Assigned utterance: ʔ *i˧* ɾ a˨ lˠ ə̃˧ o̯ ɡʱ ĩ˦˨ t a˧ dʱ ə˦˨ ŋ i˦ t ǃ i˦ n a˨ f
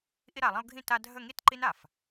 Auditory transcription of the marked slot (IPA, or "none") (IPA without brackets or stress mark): i˧